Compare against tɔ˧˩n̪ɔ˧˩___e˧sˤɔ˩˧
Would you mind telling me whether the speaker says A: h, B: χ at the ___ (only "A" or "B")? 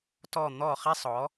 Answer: B